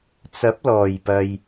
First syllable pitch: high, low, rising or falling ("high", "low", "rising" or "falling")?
rising